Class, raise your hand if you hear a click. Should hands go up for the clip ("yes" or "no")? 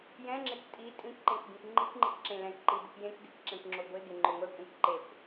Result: yes